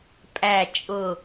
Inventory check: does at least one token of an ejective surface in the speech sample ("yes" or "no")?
yes